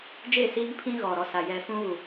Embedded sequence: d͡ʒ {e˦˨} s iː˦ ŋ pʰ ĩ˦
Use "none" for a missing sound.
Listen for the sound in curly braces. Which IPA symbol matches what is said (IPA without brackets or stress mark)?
e˦˨